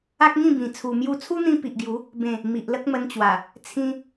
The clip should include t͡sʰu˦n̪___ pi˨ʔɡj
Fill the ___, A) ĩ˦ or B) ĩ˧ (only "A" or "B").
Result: B